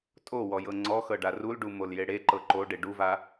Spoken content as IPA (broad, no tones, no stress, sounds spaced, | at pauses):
tʼ o w ɔ j ɤ ŋ͡ǀ ɔ x ɤ ɖ a r u l ɖ u m o l j e ɽ e ǃ ɤ ǃ o ɖ e ɖ u v a